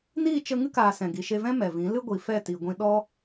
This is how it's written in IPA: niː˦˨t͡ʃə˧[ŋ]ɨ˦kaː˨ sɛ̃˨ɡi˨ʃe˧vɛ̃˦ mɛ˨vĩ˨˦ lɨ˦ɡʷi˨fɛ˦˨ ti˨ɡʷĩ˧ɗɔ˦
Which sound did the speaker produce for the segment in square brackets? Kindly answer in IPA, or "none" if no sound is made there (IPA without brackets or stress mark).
ŋ